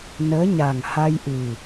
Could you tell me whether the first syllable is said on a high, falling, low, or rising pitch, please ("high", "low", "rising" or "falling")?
rising